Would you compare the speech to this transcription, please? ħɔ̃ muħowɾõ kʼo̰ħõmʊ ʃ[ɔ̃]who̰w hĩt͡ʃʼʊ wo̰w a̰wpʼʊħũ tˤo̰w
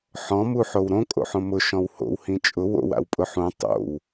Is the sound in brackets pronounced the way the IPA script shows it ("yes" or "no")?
yes